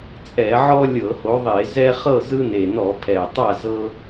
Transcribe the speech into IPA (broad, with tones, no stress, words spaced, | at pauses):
t͡sʼɛ˧˩˧ʕɔ˦ lʲɤ˧˩˧ho˨˦ðˤe˧˩˧zɛ˦ χɤ˥˨zɯ˦ne˨˩ nɔ˧˩˧pʰɛ˨˩ tˤa˥˨zɤ˦